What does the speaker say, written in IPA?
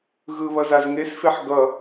ɣ ɯ β ʌ z a z ŋ e s f e ħ ɡ ʌ

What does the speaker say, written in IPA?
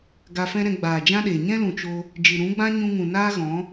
ɡ a˧ f ɛ̃˦ ɾ ɛ̃˧ ɡ͡b aː˨ d͡ʒ ã˦ ɗ eː˨ ɲ ɛ̃˦ l ũ˨ t͡ʃ o˧ | d͡ʒ ɨ˨ ɾ ũ˨˦ ɡ͡b ã˦ ɲ ũ˧ ŋ ũ˨ n aː˦ ɣ ɔ̃˨˦

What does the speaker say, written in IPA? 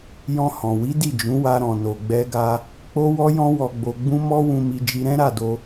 j ɔ̃˧ h ɔ̃˨ w i˨˦ d i˦˨ d͡ʒ ũ˨˦ w a˧ ɾ ɔ̃˨ n o˨ ɡ͡b ɛ˧ ɡ a˧ | k͡p o˦ w ɔ˦ j ɔ̃˦ w ɔ˧ ɡ͡b o˧ ɡ͡b ũ˦ m ɔ˦ w ũ˧ m i˧ d͡ʒ i˧ ɾ ɛ̃˦ ɾ a˦˨ d o˧

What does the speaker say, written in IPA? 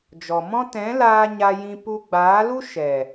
d͡ʒ ɔ˨ m ɔ̃˦ t ɛ̃˨˦ l aː˧ ɲ a˧ j ĩ˧ p u˧ ɡ͡b aː˨˦ l u˦ ʃ ɛ˨

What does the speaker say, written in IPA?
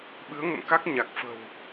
ɓ ɨ˨˦ ə̯ ŋ ə̰˧˨ m k a˦˥ k̚ ɲ a˨˩ k̚ f ə̤˨˩ w

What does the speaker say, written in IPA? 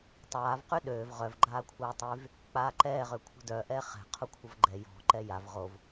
tˤ aː v q y ɗ øː v ʁ œ v ɡ͡ǃ aː kʷʰ œː tˤ y v | k͡p aː ǃ ɛː ʁ ø kʷʰ ə̤ d œ ʔ ɛː χ ɛ̤ qʰ u kʷʰ ə v ɡ͡ǃ ɛ j ɔ̤ ǃ ɛ j a v ʁ o v

